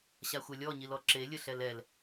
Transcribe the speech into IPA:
ɕ a xʷ ɛ lʲ ɔ ɲ i l ɔ ǁ e lʲ ə ɬ ɛ l ɛ l

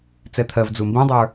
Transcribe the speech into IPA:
t͡s ɛ t̪ʰ ɜ v d͡z u m b ĩ dˤ ə˞

